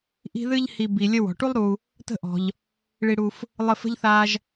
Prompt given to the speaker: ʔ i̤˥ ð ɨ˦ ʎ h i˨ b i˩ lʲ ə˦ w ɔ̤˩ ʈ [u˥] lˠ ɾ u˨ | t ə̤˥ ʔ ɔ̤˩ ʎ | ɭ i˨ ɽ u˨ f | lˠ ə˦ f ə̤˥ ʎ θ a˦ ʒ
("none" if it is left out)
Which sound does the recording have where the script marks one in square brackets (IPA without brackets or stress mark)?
u˥